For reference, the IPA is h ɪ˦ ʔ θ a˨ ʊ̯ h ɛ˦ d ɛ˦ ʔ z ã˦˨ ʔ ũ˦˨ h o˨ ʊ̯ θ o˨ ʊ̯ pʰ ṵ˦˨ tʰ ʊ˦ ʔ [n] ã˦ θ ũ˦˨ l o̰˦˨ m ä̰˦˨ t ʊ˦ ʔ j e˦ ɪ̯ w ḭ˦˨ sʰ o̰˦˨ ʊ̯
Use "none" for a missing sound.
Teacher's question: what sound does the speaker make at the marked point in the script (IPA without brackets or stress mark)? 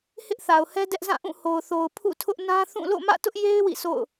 n